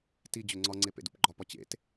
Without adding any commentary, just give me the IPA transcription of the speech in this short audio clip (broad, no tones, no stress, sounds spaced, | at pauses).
t i d͡ʑ ø ŋ͡ǀ ɒ ŋ͡ǀ e p ḛ d ṵ p ɡ͡ǃ ɒ p ɒ t͡ɕ ḛ t